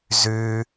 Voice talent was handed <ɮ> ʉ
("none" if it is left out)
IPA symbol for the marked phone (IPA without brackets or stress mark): z